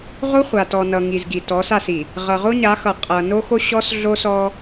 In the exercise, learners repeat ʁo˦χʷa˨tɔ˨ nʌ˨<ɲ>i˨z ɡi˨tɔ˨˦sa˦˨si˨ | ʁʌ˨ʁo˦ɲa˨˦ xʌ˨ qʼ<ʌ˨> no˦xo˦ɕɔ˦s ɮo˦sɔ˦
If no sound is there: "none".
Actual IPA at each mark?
ŋ, ʌ˨

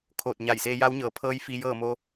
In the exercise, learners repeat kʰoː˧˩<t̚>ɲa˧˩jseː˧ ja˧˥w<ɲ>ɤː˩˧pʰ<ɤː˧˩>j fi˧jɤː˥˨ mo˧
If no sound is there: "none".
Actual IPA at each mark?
t̚, ɲ, ɤː˧˥

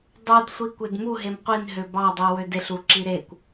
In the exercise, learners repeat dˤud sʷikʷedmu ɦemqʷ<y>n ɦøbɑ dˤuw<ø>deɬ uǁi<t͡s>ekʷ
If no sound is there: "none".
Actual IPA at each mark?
i, ø, ɾ

